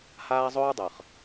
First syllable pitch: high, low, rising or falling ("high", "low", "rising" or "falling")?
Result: high